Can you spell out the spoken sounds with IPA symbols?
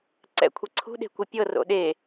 ǀ ɛ̰ kʷʰ i ǀʰ ṳ ɗ e̤ kʷ i pʲ ɤ r o̰ ɗ e

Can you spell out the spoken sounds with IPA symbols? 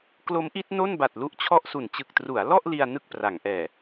k l o˦˥ m ʔ i˦˥ t̚ n o˥˩ n b a˨˩ t̚ l u˦˥ ʔ t͡ɕʰ ɔ˥˩ ʔ s u˨˩ n t͡ɕ ɯ˨˩ k̚ t r u˩˦ a̯ l ɔ˥˩ ʔ l i˧ a̯ n ɯ˥˩ k̚ p r a˩˦ ŋ ʔ ɛː˨˩

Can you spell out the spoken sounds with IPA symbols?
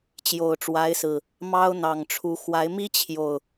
t͡ɕ j o˨˩ ʊ̯ ʈ͡ʂ w a˨˦ ɪ̯ s ɹ̩˨˩ | m ɑ˦ ʊ̯ n̪ ɑ˨˩ ŋ ʈ͡ʂʰ u˨˦ x w a˨˦ ɪ̯ m i˦ t͡ɕʰ j o˨˩ ʊ̯

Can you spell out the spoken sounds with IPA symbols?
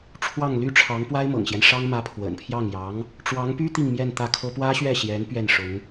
ʈ͡ʂʰ w ɑ˥˩ ŋ l y˥ ʈ͡ʂʰ ɑ˧˥ ŋ p w a˥ ɪ̯ m ɤ̰˨˩ ŋ ɕ j ɛ˦ n ʂ ɑ˥ ŋ m ä˧˥ pʰ w ə̰˨˩ n pʰ j ɑ˥˩ ŋ j ɑ˧˥ ŋ | ʈ͡ʂ w ɑ˧˥ ŋ p y˥ t̪ i˥˧ ŋ m j ɛ˥˧ n t̪ ä˥˩ kʰ ɤ˥ p w ä˥ ɕ ɥ ɛ˥˩ ɕ j ɛ˧˥ n p ɥ ɛ˥˩ n ʂ ʊ˧˥ ŋ

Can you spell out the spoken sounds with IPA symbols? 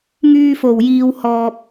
ŋ yː˧ f o˨˩ w j iː˨ w h ɔː˨ p̚

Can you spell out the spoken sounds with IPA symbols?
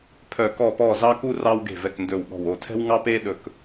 pʰ œ˧˩ k ɔ˧˩ p ɔ˧˩ z ɑ˧ k u˧ r ɑ˧ w ɡ e̤˧˩ v ɛ˧˩ k n d ɵ˧˩ w ɠ ɔ̤˧˩ w o˧˩ tʰ ɛ̤˧ w ŋ ɑ˧ p e˧ ɗ ɵ˧ k

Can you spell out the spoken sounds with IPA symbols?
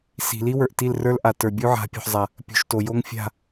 s i̤˨ l i˦ w ə˞˨ ʔ t i˦˨ l r ə˞˦ l ʔ a˨ t ə˞˨ bʲ u˦ ʕ a̤˨˦ pʲ o̤˨ ħ zˤ a˨ | pʲ ṳ˨ ʃ t o˨ j o˦ ŋ fʲ a̤˦˨

